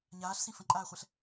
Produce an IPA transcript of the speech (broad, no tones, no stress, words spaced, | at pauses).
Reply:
ɲaːɬsĩ fə̃ǃʼaːχʷɛɬ